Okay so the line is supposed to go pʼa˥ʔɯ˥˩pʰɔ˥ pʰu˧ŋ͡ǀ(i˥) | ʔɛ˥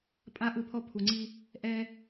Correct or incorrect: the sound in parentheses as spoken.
correct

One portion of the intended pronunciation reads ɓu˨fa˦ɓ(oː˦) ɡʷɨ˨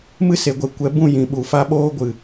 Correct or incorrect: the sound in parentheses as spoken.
correct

